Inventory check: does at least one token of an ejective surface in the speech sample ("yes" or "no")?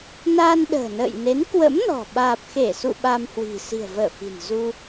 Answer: no